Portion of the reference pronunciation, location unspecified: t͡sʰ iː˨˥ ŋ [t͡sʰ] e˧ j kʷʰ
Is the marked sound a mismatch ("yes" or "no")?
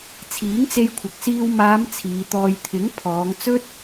yes